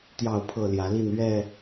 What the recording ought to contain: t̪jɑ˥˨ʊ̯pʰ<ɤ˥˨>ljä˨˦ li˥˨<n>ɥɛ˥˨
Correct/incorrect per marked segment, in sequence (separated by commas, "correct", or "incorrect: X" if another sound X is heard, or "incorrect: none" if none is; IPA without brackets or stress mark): correct, correct